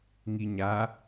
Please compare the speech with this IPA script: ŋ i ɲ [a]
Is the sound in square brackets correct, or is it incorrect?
correct